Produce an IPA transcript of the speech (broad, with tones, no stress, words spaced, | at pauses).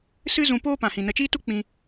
sɨ˦zũ˧poː˦ pã˨hĩ˨nə˧ t͡ʃiː˦tu˦k͡pĩ˧